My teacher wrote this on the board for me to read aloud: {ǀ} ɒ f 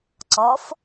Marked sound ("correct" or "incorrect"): correct